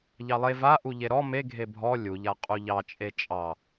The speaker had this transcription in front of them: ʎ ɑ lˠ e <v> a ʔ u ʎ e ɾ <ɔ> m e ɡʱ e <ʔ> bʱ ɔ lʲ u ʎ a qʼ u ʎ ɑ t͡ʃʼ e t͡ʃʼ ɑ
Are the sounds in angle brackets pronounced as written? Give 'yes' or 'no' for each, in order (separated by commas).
yes, yes, no